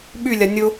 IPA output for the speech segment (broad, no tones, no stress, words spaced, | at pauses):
ɓylʲa nʲʊ